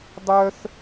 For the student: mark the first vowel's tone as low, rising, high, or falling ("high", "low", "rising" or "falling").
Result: high